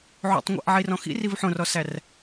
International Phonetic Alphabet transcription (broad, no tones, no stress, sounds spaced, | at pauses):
ʕ o̰ tˤ ŋʷ æ̰ ʔ ʕ i r ɔ̃ x ḭ r i v ħ õ r ɔ s æ r